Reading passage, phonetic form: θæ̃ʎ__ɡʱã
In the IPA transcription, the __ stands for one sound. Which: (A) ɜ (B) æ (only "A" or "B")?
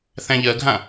A